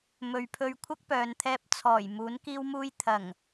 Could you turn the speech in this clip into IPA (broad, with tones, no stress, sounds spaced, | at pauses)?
m ɵ˨ ɥ pʰ ɵ˧ ɥ kʷʰ ɐ˥ k̚ p œː˨ n t̪ʰ ɛː˧ p̚ t͡sʰ ɔː˨˩ j m uː˨˥ n k iː˥ w m uː˥ j t̪ʰ ɐ˨˩ ŋ